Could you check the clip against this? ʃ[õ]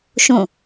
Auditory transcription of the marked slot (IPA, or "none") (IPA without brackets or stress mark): õ